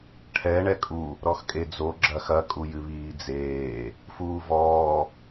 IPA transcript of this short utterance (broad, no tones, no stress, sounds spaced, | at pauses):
ʈʰ ɛ ɳ ɛ kʼ u | ɾ ɔ x kʼ e d͡z o ɡ͡ǁ ɐ x ɐ kʼ u j ɨ β iː d͡z eː | f uː v ɔː